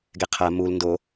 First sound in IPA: ɡ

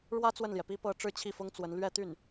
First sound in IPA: ɻ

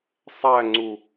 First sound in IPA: sˤ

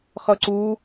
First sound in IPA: χ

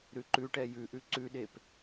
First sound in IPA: ɾ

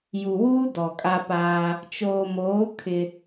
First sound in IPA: j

